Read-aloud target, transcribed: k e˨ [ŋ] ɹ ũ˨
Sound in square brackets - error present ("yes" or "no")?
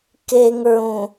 no